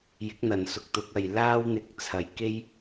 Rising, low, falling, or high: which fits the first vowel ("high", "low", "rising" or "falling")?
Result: rising